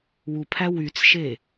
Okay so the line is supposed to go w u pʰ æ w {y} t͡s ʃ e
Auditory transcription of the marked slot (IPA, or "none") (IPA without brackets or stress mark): y